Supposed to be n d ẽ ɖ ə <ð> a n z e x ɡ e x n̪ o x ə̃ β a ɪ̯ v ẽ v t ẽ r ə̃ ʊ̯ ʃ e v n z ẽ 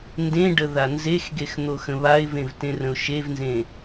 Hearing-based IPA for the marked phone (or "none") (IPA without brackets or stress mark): ð